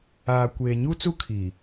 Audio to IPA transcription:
aː˨kʷeː˨ɲu˦ t͡su˦kʰiː˨

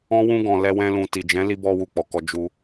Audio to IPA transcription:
ɔ̃˦wũ˦ ɡɔ̃˧lɛ˦wɛ̃˦lũ˧ ti˨d͡ʒɛ̃˨˦ li˧bɔ˧wu˨ k͡pɔ˨kɔ˧ d͡ʒu˧

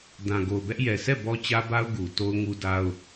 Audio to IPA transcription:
dã˨ɡo˨ʊ̯bɛ˦ʔ jɛ˨sʰɛ˦˨ bɔ˦t͡ɕä˦ba˦ʊ̯ ɡu˨to˦ʊ̯ŋu˦ da˦ʊ̯

